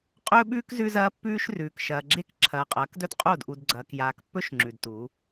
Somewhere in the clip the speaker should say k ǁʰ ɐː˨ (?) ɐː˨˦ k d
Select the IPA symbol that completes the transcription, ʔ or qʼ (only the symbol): qʼ